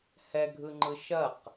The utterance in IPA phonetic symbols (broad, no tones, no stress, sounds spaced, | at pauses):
h ɛ ɡʱ ɯ ŋ͡ǃ ɯ ʃ ɐ q